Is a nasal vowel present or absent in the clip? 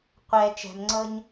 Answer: absent